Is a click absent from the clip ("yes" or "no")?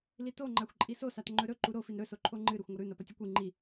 no